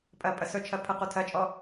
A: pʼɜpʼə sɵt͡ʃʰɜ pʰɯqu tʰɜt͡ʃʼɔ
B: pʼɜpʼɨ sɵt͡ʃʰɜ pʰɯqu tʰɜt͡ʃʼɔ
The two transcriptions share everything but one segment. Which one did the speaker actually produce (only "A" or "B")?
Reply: A